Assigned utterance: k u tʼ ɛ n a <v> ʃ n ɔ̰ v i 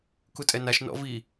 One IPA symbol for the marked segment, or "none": none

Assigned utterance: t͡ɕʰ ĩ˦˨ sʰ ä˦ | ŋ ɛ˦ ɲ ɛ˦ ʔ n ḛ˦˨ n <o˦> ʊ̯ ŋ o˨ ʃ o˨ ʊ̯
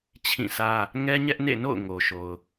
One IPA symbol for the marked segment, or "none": o̰˦˨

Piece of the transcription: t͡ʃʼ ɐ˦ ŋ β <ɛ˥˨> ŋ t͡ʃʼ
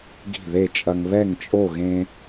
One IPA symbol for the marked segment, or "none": ɛ˥˨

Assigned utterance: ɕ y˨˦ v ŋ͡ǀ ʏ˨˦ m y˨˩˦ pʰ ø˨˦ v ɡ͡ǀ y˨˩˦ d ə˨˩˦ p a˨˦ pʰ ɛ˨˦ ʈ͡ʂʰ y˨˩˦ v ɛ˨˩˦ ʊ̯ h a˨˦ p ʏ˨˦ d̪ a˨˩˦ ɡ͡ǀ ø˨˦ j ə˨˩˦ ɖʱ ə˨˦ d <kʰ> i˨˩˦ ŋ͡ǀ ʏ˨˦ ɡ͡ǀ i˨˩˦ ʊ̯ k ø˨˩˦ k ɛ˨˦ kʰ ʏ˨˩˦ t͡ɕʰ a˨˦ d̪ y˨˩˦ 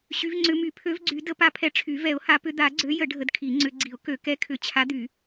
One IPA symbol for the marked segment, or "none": kʰ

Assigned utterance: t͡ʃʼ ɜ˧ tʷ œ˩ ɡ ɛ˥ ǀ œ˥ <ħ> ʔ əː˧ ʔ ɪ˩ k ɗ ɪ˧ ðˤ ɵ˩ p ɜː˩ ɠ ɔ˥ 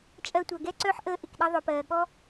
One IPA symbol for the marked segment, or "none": ħ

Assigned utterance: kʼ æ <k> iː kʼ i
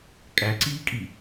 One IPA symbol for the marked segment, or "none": ǀ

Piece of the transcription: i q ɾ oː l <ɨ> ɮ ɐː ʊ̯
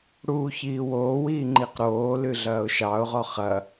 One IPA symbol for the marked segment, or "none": ɨ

